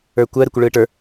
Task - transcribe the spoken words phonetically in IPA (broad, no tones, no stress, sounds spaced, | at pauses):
ə˞ kʷ ɜ ɾ ɯ kʷ ə ɭ ɯː ʈ ə˞